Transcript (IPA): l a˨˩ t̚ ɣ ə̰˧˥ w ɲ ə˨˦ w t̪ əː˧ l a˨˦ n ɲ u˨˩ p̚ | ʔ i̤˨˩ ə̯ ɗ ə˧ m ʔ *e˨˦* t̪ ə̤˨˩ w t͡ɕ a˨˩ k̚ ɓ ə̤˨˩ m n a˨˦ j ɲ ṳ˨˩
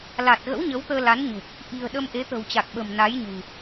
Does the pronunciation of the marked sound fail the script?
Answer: no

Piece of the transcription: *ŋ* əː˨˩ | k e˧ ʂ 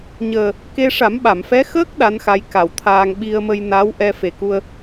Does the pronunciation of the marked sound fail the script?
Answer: yes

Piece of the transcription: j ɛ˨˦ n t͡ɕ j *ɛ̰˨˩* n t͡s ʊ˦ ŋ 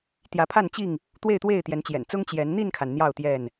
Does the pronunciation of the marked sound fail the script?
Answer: no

